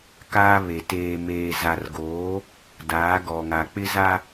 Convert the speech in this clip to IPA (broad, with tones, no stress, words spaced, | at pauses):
kaː˦βe˨ teː˨meː˨za˨rɡoː˨˦ | daː˨˦ ɡɔ˨ŋa˨ k͡pɪ˦za˦